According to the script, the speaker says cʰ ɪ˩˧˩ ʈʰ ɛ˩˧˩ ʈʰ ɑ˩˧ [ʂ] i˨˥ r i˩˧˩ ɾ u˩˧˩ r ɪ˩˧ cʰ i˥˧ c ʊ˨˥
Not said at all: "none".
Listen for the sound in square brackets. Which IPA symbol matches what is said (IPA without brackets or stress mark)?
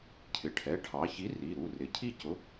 ç